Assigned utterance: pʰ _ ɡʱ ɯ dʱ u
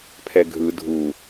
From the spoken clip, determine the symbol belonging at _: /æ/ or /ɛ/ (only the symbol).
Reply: ɛ